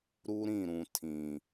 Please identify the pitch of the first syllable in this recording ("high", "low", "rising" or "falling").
high